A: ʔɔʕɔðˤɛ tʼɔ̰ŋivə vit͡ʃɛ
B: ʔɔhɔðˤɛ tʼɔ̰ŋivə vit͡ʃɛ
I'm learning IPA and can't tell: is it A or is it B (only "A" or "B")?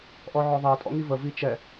A